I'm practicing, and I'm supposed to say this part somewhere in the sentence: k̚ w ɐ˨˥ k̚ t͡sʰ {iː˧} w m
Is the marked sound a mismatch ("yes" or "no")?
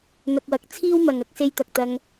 yes